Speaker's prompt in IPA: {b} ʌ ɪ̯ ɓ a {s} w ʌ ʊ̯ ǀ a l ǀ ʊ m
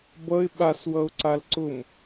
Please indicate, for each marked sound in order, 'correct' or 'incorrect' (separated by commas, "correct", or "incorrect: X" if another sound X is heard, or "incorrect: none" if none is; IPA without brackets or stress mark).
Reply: correct, correct